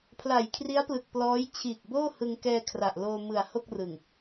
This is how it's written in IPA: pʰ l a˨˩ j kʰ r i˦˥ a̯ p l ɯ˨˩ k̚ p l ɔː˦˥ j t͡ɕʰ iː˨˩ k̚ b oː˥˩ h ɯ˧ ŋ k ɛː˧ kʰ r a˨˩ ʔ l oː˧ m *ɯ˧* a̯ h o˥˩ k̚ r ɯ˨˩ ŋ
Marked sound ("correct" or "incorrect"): incorrect